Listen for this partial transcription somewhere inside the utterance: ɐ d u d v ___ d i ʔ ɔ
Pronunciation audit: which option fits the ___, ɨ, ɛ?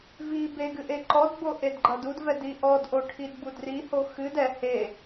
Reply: ɛ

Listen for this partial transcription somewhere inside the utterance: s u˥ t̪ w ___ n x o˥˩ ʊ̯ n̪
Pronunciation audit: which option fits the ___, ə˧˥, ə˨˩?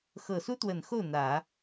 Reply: ə˨˩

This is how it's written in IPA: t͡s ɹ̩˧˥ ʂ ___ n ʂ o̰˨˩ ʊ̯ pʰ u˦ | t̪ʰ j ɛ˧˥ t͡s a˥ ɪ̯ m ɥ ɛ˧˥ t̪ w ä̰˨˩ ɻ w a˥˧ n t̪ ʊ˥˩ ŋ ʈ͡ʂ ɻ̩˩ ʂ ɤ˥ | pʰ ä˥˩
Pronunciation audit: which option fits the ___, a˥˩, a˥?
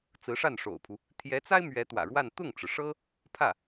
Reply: a˥˩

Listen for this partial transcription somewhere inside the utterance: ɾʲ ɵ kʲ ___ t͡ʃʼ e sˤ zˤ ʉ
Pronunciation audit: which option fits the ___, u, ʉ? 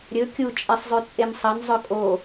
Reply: u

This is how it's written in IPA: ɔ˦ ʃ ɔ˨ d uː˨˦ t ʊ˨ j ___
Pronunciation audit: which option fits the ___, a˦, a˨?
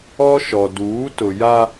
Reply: a˦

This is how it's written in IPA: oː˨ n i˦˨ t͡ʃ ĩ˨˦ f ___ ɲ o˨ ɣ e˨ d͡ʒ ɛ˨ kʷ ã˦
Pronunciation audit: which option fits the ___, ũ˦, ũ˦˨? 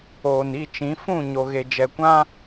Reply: ũ˦˨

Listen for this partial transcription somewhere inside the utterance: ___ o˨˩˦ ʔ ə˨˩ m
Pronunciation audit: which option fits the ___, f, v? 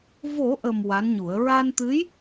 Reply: v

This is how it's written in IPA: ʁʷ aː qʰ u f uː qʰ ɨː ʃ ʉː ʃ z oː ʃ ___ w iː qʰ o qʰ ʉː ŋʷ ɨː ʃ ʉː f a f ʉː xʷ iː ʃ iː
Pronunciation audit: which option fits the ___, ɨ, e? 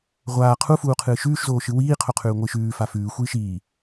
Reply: ɨ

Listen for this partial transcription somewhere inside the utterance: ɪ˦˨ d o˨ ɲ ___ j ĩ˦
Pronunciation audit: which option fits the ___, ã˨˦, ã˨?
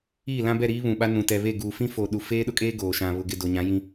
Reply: ã˨˦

